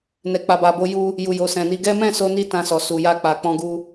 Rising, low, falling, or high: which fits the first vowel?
low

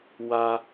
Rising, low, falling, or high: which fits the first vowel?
high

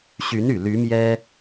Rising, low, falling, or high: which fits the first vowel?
rising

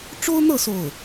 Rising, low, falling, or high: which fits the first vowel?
high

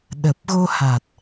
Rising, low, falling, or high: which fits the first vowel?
low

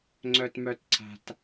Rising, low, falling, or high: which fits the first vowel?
high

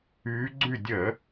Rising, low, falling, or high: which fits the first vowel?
rising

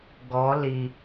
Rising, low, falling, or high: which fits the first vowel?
rising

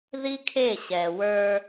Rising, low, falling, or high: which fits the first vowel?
high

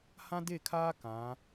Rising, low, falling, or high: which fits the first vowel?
high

